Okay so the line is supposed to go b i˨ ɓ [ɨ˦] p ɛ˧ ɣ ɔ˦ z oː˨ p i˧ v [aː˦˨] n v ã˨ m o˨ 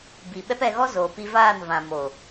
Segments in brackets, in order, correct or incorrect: incorrect: ɛ˦, correct

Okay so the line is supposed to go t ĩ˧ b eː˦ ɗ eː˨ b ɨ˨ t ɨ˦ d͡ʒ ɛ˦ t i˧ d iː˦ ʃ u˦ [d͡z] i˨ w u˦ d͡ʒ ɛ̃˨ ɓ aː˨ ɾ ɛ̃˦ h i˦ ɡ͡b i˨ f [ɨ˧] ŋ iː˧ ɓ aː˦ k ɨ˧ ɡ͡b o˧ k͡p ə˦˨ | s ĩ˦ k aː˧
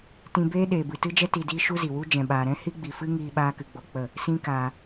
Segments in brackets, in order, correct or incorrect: incorrect: z, incorrect: ɨ˦

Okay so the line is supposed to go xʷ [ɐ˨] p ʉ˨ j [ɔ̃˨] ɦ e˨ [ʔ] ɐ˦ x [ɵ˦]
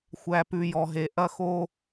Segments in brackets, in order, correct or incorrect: incorrect: æ˨, incorrect: ɔ˨, correct, incorrect: o˦

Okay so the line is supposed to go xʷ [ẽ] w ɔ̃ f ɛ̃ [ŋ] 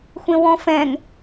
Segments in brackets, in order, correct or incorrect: correct, correct

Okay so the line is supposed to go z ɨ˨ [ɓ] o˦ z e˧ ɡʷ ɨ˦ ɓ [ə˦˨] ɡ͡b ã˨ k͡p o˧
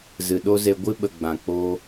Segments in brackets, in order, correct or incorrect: incorrect: ɗ, incorrect: ə˨

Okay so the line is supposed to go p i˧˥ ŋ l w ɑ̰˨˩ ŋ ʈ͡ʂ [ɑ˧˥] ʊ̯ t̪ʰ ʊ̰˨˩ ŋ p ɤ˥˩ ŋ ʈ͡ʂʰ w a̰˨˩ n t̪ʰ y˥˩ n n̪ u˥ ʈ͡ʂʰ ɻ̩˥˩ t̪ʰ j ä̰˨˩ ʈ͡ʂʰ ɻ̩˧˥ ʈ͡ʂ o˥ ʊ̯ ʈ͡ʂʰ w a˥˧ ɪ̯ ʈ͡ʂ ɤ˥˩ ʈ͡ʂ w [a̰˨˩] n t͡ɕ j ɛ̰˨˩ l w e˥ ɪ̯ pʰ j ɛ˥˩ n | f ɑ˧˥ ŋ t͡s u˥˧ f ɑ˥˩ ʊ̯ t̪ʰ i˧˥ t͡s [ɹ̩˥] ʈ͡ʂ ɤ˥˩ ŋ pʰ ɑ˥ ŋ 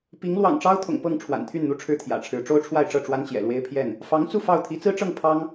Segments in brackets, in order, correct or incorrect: incorrect: ɑ˥, incorrect: a˥, correct

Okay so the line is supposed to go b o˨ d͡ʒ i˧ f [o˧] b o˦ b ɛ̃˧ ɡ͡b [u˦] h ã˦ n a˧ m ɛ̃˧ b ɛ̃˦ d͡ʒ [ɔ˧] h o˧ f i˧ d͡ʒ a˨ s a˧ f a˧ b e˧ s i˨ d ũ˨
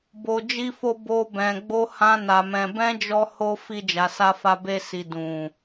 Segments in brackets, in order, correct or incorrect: correct, incorrect: o˦, correct

